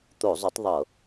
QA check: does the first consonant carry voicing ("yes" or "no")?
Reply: no